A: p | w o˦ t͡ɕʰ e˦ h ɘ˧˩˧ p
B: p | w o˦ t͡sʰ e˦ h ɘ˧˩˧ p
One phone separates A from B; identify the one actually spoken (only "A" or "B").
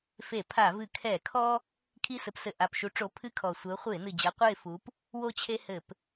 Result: A